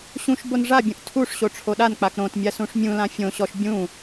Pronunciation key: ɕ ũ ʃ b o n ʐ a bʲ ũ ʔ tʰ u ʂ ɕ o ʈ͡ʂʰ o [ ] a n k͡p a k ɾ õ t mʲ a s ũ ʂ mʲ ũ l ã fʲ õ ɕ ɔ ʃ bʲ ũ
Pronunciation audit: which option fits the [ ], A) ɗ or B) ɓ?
A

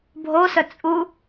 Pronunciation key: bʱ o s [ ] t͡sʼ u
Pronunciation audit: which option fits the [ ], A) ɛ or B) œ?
B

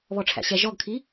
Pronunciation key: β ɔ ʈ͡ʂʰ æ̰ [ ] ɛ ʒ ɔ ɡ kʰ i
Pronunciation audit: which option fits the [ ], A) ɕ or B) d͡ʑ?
A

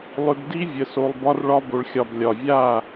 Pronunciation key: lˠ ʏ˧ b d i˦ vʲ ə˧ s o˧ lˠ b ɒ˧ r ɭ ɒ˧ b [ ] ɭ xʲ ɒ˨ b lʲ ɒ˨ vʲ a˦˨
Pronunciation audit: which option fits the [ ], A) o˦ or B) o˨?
B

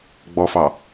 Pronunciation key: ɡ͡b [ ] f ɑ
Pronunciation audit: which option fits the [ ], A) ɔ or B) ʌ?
A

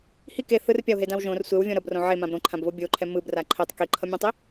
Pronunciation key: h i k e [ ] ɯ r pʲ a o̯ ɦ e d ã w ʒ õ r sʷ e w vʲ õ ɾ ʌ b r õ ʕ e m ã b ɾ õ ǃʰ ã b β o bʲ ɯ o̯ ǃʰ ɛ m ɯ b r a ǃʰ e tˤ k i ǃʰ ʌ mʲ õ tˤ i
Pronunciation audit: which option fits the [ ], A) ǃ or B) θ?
B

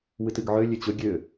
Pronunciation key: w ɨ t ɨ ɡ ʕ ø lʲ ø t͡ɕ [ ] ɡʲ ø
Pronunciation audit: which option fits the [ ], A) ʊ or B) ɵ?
B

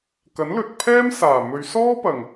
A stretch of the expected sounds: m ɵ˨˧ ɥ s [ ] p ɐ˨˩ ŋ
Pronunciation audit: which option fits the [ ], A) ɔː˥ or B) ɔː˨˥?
A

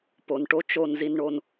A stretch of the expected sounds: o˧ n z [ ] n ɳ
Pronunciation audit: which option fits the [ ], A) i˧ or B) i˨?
A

